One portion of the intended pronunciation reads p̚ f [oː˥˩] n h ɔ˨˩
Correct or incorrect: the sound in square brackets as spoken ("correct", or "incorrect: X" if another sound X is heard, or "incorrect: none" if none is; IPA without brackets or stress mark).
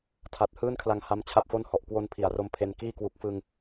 incorrect: o˥˩